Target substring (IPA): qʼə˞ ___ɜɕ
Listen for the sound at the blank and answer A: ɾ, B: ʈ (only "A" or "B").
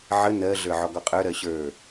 A